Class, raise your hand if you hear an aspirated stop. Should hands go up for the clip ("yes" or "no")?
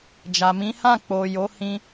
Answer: no